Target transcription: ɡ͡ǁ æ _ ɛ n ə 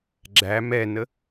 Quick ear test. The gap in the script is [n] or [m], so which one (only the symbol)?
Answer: m